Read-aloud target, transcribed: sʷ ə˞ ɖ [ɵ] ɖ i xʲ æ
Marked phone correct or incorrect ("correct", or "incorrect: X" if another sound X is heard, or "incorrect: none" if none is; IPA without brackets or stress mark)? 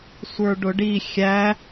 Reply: incorrect: ʊ